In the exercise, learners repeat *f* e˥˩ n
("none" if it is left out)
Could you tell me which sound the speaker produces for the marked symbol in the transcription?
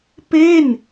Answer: p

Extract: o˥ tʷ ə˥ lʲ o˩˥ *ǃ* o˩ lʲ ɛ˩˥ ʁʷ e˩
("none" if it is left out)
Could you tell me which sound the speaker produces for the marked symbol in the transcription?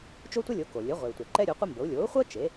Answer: k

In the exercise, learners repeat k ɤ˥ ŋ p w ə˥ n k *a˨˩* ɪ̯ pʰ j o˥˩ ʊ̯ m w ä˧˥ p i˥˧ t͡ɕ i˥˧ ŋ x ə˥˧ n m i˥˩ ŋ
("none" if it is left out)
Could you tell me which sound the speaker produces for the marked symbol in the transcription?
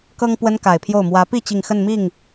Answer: a˨˩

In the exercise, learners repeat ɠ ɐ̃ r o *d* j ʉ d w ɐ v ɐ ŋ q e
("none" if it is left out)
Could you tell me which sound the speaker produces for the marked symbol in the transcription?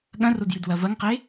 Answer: d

